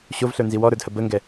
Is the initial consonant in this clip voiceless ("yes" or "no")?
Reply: yes